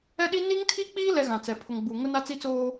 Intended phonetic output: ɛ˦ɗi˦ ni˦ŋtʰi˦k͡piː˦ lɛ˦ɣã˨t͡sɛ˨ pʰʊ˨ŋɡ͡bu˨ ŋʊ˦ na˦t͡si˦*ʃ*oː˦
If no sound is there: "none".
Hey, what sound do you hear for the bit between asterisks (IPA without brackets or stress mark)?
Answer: t͡s